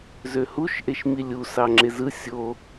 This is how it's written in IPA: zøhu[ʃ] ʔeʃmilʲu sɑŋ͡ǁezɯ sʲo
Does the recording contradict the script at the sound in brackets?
no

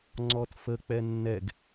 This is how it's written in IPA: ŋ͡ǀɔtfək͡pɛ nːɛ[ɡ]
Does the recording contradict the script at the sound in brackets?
no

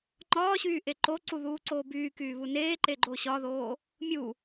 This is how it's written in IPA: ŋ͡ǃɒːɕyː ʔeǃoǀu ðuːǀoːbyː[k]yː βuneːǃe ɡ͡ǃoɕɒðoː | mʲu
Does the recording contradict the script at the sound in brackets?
no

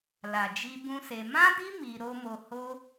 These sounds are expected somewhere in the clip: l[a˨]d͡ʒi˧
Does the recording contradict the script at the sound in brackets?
no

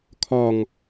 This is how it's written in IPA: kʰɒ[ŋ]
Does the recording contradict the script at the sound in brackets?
no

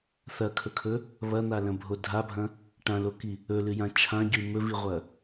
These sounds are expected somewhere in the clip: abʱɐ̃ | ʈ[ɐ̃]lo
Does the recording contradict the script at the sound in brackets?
yes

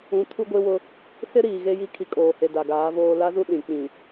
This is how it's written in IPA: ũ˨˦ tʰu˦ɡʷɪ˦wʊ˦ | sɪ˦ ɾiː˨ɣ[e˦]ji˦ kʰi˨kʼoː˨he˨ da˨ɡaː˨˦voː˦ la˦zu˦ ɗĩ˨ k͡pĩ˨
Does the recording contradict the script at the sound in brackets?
no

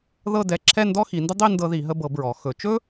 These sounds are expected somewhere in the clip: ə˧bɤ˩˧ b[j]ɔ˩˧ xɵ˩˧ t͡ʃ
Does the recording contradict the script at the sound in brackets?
yes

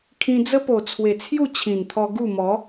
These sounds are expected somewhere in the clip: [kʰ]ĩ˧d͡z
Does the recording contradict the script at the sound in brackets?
no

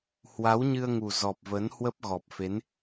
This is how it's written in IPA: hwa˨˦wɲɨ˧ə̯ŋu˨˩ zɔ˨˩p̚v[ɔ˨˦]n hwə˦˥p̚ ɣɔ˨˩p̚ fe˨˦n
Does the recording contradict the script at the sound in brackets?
yes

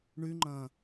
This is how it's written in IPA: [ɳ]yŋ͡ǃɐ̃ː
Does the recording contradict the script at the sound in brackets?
no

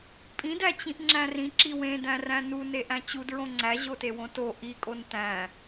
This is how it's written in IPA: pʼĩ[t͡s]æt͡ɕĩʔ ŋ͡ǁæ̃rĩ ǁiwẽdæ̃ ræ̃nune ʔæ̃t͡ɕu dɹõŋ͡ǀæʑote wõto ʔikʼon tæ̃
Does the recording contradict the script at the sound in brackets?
yes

